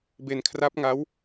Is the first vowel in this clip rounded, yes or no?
no